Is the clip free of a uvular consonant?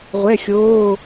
no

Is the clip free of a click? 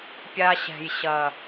yes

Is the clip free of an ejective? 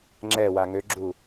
yes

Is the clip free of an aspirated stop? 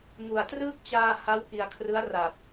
no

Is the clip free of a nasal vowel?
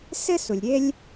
yes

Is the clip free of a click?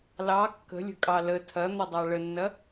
yes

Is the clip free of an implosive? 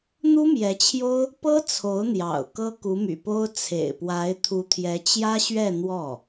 yes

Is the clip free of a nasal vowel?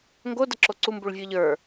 yes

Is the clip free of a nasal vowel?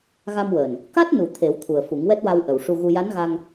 yes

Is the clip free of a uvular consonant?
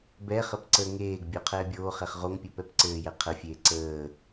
no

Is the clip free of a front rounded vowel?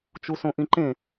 yes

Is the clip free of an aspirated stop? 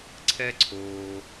no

